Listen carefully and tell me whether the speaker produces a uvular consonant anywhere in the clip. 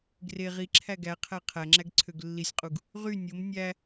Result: yes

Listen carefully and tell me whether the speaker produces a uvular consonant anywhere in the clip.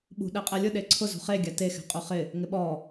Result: yes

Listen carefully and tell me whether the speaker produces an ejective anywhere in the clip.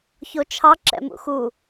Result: no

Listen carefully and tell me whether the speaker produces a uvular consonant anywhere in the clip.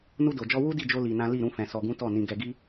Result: no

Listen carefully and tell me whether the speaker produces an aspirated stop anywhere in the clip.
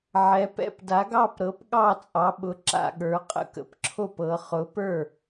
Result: yes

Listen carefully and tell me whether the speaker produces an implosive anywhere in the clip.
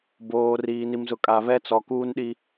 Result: yes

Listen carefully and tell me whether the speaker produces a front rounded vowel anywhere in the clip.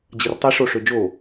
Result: yes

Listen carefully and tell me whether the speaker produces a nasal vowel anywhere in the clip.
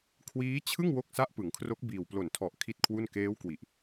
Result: no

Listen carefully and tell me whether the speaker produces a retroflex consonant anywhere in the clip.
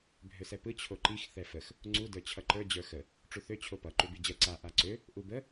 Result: yes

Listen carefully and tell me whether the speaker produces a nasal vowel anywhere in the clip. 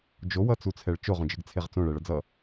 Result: yes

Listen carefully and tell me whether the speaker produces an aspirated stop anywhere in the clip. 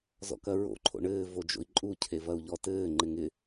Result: yes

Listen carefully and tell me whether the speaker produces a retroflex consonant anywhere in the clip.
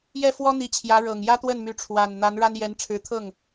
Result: yes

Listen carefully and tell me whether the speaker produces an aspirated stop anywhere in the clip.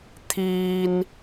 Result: yes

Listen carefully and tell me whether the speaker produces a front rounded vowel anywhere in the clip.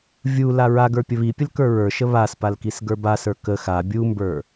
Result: no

